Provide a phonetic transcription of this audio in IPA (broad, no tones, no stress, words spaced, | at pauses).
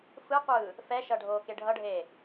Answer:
fɯqʷɯː | fɛʃʌ ɖʱoːkeɖʱʌɖʱeː